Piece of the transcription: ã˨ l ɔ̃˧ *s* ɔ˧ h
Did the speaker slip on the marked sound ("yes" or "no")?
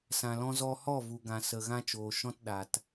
yes